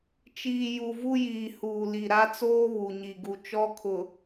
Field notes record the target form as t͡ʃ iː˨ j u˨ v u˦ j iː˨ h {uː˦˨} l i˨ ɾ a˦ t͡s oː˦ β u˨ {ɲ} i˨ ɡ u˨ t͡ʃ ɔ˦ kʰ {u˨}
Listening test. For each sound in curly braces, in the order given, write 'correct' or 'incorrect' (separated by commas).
incorrect, correct, incorrect